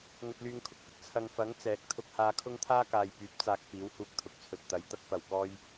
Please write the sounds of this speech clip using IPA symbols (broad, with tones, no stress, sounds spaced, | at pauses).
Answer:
ŋ ɵ˧ t̚ l yː˧ ŋ kʰ ʊ˨ k̚ f ɪ˧ k̚ t͡sʰ ɐ˨ ŋ f ɐ˨˥ ŋ t͡s ɛː˨˥ k̚ t̪ʰ ʊ˧ k̚ h aː˧ kʰ ʊ˥ ŋ t̪ʰ aː˥ k aː˨ j p yː˨˥ p̚ t͡s aː˨ k̚ f iː˨˥ w h uː˧ k̚ t̪ʰ ʊ˨ k̚ t͡sʰ ɵ˨ t̚ t̪ ɐ˨˥ j t̪ ɐ˧ k̚ f ɐ˨˩ w k ɔː˧ j